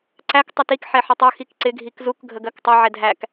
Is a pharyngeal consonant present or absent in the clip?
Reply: present